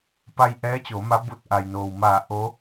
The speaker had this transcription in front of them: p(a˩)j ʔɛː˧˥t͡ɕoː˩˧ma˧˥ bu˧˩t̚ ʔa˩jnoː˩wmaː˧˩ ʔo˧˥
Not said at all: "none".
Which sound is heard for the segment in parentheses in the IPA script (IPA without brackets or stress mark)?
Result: a˧